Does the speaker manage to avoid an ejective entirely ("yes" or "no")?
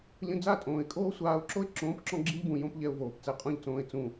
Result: no